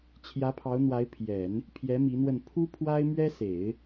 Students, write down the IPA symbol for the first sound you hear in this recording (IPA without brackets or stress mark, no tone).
t͡ɕʰ